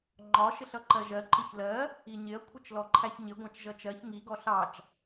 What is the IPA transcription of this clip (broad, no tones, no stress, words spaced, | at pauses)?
ŋ͡ǃɒ ʃɪɬʌǃɜʒɜ ǃɪçlɜ | iɲɪɐ̯ kʷʰɪt͡ʃlɔǃʰæçɲɪ ɡʷɑ̃t͡ʃʒʌt͡ʃɜç ŋi ɡɔɬɑt͡ʃ